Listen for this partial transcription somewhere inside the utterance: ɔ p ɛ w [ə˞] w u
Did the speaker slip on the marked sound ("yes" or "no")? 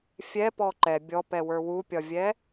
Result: no